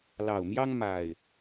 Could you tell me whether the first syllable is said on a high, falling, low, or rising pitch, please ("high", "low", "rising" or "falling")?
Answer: low